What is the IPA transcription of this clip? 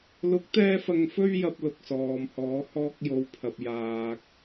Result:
l ʊ˨˥ k̚ t̪ ɛː˧ f ɐ˧ ŋ f ɵ˥ ɥ j ɐ˧ p̚ l ʊ˨ k̚ s ɔː˨ m h ɔː˨˧ h ɔː˧ k̚ j o˨˧ w pʰ ɐ˨ p̚ j aː˨ k̚

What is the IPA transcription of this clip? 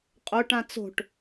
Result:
qʼ o ʈ ã t͡s o̤ ʈ

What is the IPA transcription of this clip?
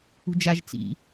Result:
ṳ d͡ʒ a ʒ t͡s ḭ

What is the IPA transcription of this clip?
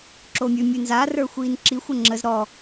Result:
ǁ oː mʲ ʉ mʲ ʉ n z a r ə˞ xʷ iː n ǁ i xʷ ə ŋ͡ǁ ə z ɾ ɔ

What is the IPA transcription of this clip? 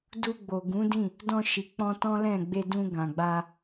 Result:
d u˧ ɡ͡b o˨ ɡ ũ˨˦ d ĩ˦˨ | d ɔ̃˧ ʃ i˨ k͡p ɔ̃˧ t ɔ̃˦ l ɛ̃˦˨ ɡ͡b e˧ d ũ˧ ɡ ã˨ ɡ͡b a˧

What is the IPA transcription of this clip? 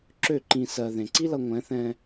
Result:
ǁ ø˦˨ ǃ ĩ˧ s ɜ˧ ð ẽ˨ ǀ i˦ l ʌ˧ ŋʷ ɛ̃˨˦ θ ɛ̃˧

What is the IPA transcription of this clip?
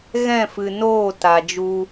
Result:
ɣ ɛ̃˦˨ f ɨ˨ n oː˦˨ t a˨ d͡ʒ u˧

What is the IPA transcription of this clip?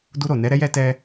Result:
d u˧ ɾ o˨ n ɛ˨˦ ɾ ɛ˦ j ɛ˦ t ɛ˦

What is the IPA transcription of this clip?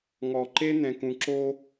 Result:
ŋ ɔ˨ ǃ e˦ n̪ ɛ̃˨ k ũ˨ ǁ o˦

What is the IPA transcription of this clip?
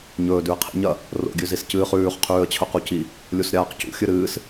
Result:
ɲ ɵː d ʉ ə̯ qʰ ḭ ɲ ɐ | r o̰ ɡʲ ʉ z i s c ɨː χ ʉː χ qʰ ʉː ə̯ t͡ɕʰ ɵ q u c i | lʲ u s ɾʲ aː q c ṵ xʲ ɨ ɾ ɨː s

